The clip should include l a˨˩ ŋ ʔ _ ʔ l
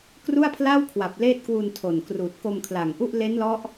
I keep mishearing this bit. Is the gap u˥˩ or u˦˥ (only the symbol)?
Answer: u˥˩